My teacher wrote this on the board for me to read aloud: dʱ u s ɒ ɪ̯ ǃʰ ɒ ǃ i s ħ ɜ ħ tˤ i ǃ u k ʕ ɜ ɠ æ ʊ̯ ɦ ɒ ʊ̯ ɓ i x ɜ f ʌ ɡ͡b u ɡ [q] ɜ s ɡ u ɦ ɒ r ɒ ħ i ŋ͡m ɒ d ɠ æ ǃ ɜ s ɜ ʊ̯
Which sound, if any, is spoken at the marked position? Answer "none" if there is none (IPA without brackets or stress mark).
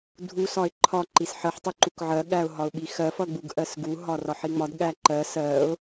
ʔ